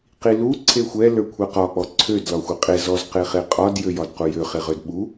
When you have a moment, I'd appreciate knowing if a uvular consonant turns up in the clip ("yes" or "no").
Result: yes